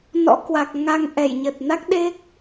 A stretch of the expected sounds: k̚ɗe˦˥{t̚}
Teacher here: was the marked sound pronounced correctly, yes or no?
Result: no